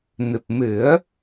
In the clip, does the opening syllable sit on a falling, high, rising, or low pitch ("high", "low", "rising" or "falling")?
low